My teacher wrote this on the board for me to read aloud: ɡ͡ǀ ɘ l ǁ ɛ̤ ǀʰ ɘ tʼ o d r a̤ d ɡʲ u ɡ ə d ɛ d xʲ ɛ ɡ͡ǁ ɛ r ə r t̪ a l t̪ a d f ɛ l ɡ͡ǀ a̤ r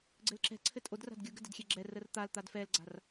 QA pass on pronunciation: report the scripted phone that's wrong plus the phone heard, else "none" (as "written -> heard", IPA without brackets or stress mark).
none